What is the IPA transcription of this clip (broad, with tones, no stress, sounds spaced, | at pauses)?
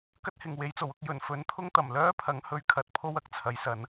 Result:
k ɐ˥ t̚ h ɪ˨˩ ŋ w e˨˧ j t͡s o˨˩ w ʊ˧ k̚ j ɵ˨˩ n f ɵ˨˧ n t̪ʰ ʊ˥ ŋ t̪ ɐ˨˩ m l œː˥ pʰ ɐ˨˥ ŋ h ɵ˧ ɥ kʰ ɐ˨˥ t̚ pʰ o˥ w ɐ˨˥ k̚ t͡sʰ ɐ˨˥ j s ɐ˨˥ n